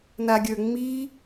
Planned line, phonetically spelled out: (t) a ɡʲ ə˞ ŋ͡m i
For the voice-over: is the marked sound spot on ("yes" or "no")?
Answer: no